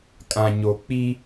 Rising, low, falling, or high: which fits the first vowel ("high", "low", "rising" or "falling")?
low